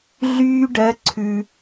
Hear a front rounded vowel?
yes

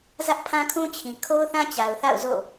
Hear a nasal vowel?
yes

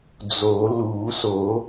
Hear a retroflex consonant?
no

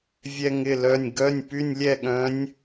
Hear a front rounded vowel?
yes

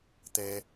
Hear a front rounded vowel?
no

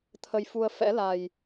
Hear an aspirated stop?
yes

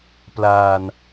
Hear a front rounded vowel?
no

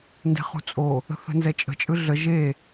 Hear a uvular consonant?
yes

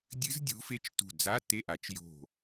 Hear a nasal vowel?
no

